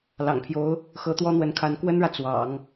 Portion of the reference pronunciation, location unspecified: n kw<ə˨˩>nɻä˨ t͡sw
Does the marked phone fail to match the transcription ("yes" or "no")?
yes